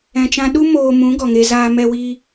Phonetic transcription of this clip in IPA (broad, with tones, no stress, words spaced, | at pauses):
ɛ̃˨t͡ʃã˧ɗu˦ moː˧mũ˨˦ ɡɔ˨ŋe˧zaː˧ mɛ˧wi˧